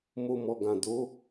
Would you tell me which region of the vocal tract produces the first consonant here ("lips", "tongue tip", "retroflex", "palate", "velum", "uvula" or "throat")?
lips